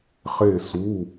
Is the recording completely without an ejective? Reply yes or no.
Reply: yes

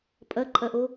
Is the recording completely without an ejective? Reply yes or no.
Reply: no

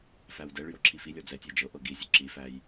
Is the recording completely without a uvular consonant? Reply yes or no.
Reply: yes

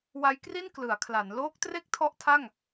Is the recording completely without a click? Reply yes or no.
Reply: yes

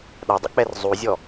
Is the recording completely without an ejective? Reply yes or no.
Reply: yes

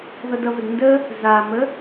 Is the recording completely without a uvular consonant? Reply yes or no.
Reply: yes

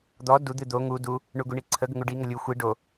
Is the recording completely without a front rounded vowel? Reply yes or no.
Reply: yes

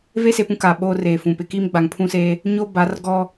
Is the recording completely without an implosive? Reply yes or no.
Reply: no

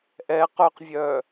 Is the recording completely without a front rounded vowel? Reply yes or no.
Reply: no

